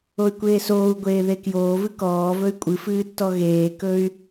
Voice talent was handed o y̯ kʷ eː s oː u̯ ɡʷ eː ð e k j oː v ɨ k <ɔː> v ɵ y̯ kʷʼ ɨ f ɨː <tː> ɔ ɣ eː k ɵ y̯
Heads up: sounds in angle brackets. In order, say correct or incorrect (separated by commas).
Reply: correct, correct